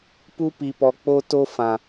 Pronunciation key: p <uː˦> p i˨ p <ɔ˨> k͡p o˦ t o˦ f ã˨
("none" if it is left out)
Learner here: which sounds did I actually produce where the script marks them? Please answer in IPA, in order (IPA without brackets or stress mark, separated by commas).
u˦, ɔ˨